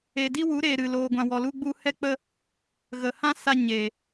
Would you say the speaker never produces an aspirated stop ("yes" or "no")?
yes